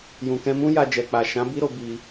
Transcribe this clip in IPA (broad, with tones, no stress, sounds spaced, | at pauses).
j ũ˨ k ɛ̃˧ m ũ˦ j a˧ d͡ʒ ɛ˨ k͡p a˨ ʃ ã˨˦ b i˦ ɾ o˧ b i˧